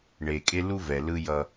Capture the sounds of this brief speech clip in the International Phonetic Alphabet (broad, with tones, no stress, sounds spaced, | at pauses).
ɳ e˨ kʼ e˦ l u˦ v ɛ˨ l ɯ˦ j ʌ˦